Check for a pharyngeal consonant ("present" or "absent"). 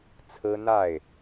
absent